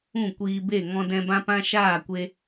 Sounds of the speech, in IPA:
ũ˦˨ kʷiː˧be˦˨ ŋɔ̃˧dɛ̃˧ bã˦pã˦ʃaː˦˨kʷe˧

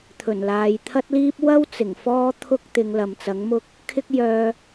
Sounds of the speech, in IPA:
t̪ʰɵ˨˩nlaː˨jt̪ʰɐ˥t̚liː˥p̚ wɐ˥w t͡sɪ˨˩ŋfɔː˥ t̪ʰʊ˥k̚ t̪ɪ˨˧ŋlɐ˨mt͡sɐ˨˥ŋmʊ˥k̚ | kʰɪ˥k̚jœː˧

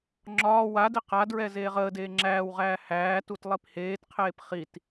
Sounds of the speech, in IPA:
ŋ͡ǁɒː wadi qadɹɛ zeːʁəːdeː ŋ͡ǁæːwʁæː hæː tutlˠipheːtqʰeːp χit

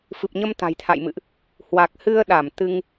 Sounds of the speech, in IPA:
fɨ˨˩p̚ɲə˧m t̪a̤˨˩jt̪ʰa̰˧˨jmɨ̰˧˨ʔ | hwa˨˩k̚hɨ˧ə̯ɗa˧˩m t̪ɨ˧ŋ

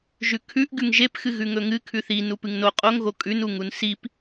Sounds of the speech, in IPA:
ʒʉkʰʉʔ ɡʉŋʒep xɨɣʉŋɵŋɨ kʰʉθi nupɨŋno qʼoŋ ɣokʼʉn uŋunsip

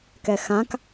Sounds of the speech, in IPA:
kɛxãk

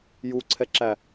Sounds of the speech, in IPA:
juǀʰɛǁæ

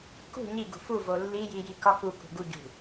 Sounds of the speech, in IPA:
kṳ ɲi ɡṳfuvo lːiji jikɒkukṳ ɡuɟṳ

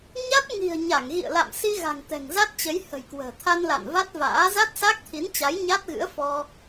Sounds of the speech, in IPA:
ɲa˦˥t̚ ŋi̤˨˩ə̯ ɲa˧˩ŋɣḭ˧˨ə̯la̰˧˨m si˧ɣa̤˨˩ŋ t̪ɛ̤˨˩ŋza˦˥t̚t͡ɕə˨˦j hə̤˨˩jkwə̤ː˨˩t̪ʰa˧n la̰˧˨nva˦˥t̚va̰ː˧˥ za˦˥t̚sa˦˥k̚t̪ʰi˨˦nt͡ɕa˨˦j ɲa˦˥t̚ɣɨ̰˧˥ə̯fɔ˧

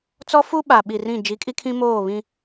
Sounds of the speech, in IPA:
t͡sɔ˦fu˦ ɓa˨ɓi˨ rĩ˦˨ d͡ʒi˨˦kʼi˦kʰĩ˦moː˦˨ βĩ˦

